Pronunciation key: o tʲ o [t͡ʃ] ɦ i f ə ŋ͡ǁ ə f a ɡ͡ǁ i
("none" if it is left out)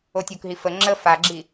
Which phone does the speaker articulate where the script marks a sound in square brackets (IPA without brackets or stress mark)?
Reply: k